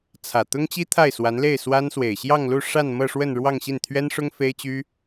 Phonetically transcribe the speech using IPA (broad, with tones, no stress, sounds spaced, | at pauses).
t͡sʰ ä˨˩ t̪ ʊ˥ ŋ t͡ɕ i˥ t̪ʰ a˥˩ ɪ̯ s w a˧˥ n l e˥˩ ɪ̯ s w a˥ n s w e˨˩ ɪ̯ ɕ j ɑ˥˧ ŋ l u˥˧ ʂ a˥˧ n m ɤ˥˧ ʂ w ə˥˧ n ɻ w ɑ˥˧ ŋ ɕ i˥˩ n t̪ʰ ɥ ɛ˥ n ʂ ʊ˥ ŋ f e˥ ɪ̯ t͡ɕ y˥